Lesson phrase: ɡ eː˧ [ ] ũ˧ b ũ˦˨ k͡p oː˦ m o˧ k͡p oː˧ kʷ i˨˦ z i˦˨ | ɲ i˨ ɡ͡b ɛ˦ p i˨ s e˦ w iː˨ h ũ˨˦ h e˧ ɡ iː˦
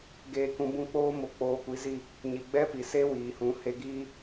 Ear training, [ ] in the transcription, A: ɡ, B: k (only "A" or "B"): B